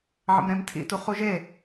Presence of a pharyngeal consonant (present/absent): present